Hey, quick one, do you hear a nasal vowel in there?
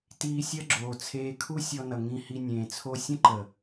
yes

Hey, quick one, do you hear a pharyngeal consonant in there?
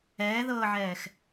yes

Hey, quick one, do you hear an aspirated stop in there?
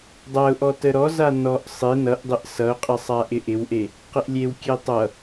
no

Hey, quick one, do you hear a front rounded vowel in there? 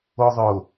no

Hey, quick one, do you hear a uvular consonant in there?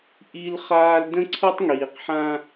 yes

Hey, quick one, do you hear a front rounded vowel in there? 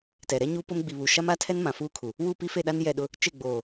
no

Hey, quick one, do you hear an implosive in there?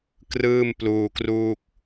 no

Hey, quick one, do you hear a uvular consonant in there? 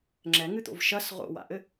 yes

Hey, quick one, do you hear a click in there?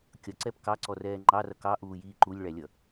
yes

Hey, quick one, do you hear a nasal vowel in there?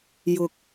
no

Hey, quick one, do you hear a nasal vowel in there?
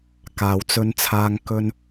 no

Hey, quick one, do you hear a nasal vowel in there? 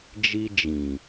yes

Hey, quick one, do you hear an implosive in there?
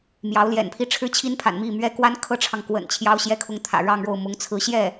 no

